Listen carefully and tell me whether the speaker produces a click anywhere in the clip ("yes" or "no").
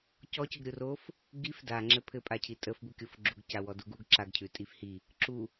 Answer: yes